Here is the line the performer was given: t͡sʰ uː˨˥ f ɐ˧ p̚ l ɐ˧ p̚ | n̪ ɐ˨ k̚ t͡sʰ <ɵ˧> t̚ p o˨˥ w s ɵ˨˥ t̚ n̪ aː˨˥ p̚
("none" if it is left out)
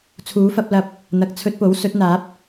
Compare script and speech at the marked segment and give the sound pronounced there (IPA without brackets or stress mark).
ɵ˧